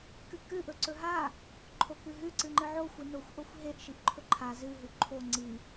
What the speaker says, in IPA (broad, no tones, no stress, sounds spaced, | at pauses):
k ɨ k ɨ ʔ ɵ ǀ ɵ ɦ a | ǃʰ o k ɨ ɦ ʉ ǀ ɨ ŋ͡ǃ ɨ ʕ o xʷ ɨ n o xʷ ʔ o xʷ ɦ e ʔ ʃ i ʔ ǃʰ ɵ ǃʰ a z ɨ ɦ ʉ ǃʰ o ŋ͡ǀ i